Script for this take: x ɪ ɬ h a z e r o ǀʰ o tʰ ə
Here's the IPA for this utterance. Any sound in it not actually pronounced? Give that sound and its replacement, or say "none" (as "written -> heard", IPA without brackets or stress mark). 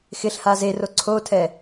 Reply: ə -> ɛ